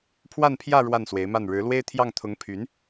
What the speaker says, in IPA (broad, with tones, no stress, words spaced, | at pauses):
pʰwa˥˧npʰjä˥˧ ɻwa˥˩nswe˧˥ɪ̯ma˥˩n ɻɻ̩˧˥lwe˥ɪ̯t̪ʰjɑ˥˩ŋ t̪ʰʊ˧˥ŋpʰy˧˥n